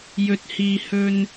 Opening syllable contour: low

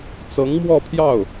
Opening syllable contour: rising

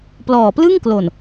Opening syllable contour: low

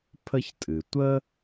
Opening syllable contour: high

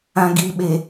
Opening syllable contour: low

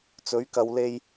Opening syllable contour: rising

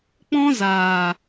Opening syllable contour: high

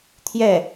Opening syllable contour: falling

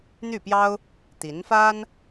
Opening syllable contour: falling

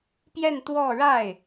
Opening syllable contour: falling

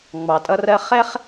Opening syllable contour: low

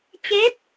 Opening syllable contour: rising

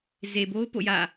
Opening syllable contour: low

